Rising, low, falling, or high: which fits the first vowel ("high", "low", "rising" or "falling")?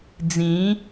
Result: rising